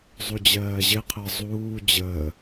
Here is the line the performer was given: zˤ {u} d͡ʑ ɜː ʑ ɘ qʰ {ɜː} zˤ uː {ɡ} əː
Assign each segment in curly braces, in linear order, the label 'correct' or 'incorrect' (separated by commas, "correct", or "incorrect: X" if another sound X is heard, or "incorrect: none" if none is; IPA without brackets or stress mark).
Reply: correct, incorrect: ɜ, incorrect: d͡ʑ